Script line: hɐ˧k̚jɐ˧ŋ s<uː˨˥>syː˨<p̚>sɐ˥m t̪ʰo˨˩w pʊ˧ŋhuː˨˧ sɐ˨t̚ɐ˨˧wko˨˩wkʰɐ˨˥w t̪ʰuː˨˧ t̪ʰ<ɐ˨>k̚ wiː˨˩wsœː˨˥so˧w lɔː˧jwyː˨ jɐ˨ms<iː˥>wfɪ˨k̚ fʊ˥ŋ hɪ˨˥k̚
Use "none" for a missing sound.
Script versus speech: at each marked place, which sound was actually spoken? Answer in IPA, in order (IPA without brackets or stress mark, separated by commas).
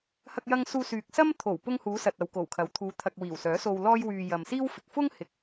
uː˧, k̚, ɐ˨, iː˥